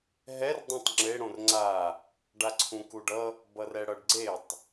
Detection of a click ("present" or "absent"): present